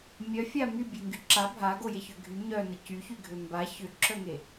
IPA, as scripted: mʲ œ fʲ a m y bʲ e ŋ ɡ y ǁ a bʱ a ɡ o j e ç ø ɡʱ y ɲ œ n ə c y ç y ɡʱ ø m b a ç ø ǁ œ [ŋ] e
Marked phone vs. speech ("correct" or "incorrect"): correct